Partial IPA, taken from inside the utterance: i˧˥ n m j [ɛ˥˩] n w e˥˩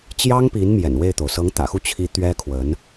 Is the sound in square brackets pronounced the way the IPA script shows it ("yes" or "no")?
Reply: no